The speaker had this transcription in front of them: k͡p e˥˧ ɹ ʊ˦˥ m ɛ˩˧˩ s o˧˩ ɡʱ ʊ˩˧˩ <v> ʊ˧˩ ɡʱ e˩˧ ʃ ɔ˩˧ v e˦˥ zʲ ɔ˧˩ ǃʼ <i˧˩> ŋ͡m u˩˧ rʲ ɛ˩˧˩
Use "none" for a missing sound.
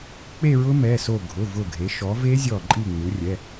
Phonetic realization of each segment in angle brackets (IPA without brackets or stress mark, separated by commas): v, i˧˩